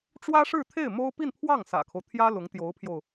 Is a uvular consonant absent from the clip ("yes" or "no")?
yes